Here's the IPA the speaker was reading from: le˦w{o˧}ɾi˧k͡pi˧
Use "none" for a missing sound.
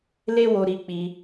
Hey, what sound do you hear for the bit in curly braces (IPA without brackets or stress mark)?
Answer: o˧